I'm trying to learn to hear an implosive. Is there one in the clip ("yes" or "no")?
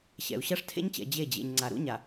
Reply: no